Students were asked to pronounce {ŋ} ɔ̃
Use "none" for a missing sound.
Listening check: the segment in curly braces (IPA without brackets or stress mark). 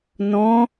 n